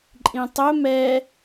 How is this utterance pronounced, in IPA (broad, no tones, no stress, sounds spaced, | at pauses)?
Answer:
ǃʼ ĩ tˤ ɵ m ɛ